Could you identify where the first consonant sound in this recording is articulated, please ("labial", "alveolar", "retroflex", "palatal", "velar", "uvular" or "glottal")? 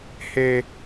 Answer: glottal